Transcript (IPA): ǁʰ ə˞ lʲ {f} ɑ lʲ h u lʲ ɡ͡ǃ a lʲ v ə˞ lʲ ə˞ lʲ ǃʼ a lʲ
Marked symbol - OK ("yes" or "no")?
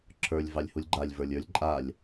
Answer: no